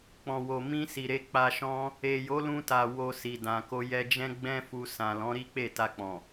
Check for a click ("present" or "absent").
absent